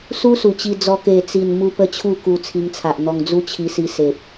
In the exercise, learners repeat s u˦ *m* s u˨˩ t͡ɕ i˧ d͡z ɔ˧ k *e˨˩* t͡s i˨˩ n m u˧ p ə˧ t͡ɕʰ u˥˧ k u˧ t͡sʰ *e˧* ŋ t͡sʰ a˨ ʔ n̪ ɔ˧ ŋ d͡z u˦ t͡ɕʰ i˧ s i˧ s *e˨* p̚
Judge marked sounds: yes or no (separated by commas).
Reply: no, yes, no, yes